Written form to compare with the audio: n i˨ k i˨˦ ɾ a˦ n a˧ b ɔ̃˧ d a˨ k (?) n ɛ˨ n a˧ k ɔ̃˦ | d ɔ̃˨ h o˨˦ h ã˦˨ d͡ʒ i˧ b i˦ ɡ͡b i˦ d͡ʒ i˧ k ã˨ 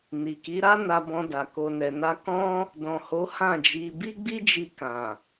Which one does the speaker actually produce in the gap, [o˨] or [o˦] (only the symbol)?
o˨